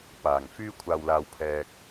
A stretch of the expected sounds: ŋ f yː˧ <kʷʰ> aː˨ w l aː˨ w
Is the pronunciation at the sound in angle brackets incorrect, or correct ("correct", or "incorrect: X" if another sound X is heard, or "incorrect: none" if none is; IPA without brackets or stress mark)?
correct